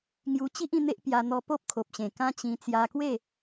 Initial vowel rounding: rounded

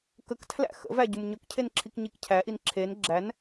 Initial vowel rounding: unrounded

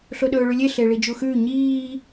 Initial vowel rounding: rounded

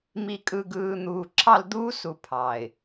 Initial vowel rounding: unrounded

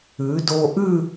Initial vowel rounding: rounded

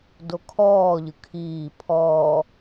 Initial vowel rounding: rounded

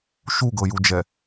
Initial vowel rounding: rounded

